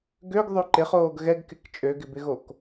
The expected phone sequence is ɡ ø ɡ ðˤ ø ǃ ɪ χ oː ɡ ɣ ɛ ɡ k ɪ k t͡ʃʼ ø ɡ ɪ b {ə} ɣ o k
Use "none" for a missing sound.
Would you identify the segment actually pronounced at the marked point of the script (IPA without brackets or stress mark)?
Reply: ɪ